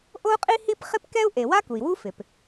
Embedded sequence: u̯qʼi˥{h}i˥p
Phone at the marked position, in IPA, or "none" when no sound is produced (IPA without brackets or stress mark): h